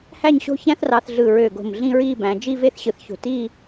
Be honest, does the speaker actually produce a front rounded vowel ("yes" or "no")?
yes